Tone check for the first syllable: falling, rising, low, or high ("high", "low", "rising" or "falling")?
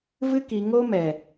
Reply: high